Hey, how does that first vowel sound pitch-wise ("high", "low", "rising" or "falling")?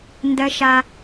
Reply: high